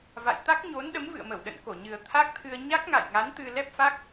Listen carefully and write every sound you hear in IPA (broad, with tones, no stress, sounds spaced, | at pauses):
v a̰˧˨ j t̪ a˦˥ k̚ ɲ o˨˦ n ɗ ə˨˦ m v ɨ̰˧˨ ə̯ m ə˧˩ w ɗ ə̰˧˨ n k o˧˩ ɲ ɨ˨˩ ə̯ t̪ʰ a˦˥ k̚ t̪ʰ ɨ˧ ə̯ ɲ a˦˥ k̚ ŋ a̰˧˨ j ŋ a˨˦ n t̪ ɨ˧ l ɛ˦˥ p̚ f a˦˥ k̚